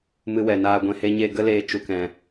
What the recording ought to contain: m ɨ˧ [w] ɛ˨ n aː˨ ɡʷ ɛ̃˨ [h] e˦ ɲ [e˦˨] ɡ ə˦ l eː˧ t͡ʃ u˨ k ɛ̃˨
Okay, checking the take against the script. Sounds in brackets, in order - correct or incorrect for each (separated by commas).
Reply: correct, correct, correct